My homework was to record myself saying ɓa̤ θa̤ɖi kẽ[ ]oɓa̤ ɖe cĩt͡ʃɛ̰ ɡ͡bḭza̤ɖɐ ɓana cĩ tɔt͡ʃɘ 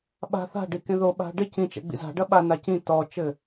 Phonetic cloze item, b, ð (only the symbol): ð